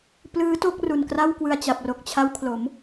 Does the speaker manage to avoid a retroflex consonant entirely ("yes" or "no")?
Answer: yes